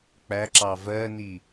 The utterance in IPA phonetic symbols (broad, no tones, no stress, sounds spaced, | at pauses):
k͡p æ ǁ ɑ v ɜ n i